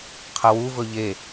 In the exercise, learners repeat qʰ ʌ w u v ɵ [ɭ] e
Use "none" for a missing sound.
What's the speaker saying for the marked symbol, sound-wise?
ʎ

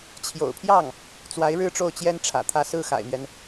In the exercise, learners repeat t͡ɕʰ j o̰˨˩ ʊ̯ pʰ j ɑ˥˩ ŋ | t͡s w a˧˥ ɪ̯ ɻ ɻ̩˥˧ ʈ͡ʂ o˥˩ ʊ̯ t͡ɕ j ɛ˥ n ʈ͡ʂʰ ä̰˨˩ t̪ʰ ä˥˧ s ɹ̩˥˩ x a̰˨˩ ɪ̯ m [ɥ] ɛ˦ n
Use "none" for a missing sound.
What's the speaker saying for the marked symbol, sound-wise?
ɥ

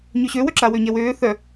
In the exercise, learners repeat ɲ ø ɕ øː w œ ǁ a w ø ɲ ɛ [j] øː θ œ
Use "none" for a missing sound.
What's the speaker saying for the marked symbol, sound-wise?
w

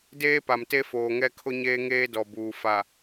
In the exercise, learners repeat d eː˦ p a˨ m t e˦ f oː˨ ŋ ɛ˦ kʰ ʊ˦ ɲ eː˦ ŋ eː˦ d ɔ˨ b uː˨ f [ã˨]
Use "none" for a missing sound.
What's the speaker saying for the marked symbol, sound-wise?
a˨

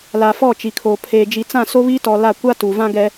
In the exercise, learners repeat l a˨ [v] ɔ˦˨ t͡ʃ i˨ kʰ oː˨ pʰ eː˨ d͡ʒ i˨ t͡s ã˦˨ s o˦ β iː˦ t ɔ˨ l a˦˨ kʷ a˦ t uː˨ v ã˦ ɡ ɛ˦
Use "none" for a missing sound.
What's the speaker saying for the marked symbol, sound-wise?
f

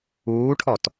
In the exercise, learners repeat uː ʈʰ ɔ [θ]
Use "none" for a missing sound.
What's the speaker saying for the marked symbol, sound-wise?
t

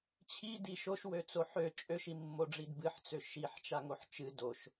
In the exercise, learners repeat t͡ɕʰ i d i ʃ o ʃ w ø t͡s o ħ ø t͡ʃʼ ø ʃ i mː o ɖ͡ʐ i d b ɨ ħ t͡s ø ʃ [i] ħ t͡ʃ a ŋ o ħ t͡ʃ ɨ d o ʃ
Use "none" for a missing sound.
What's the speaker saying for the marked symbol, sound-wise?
i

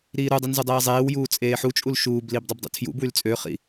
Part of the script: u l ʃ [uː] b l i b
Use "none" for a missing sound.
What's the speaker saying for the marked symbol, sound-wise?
uː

